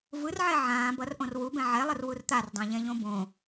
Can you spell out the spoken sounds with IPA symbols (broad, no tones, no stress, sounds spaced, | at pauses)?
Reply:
v ɯ r ʕ ɛ ʕ ãː b ʌ r ʔ õ r w u b ɛ̃ ʕ ɛ lˠ ɯ r w u r t̪ a r dˤ ẽ ʎ ɛ̃ ʎ õ b õ